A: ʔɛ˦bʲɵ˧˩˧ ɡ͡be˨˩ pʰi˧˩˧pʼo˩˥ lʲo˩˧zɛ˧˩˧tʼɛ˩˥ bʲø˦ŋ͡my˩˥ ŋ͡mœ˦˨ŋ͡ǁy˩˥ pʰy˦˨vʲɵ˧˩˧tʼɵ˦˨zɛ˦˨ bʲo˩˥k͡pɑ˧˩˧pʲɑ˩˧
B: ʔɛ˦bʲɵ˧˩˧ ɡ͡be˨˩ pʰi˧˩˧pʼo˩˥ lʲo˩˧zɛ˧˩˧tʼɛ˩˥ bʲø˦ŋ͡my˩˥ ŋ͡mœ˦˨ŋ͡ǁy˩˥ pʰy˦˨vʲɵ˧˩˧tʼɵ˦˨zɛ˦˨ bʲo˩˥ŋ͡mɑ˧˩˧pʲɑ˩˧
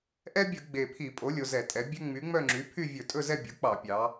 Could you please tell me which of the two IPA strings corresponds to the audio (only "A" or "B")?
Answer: A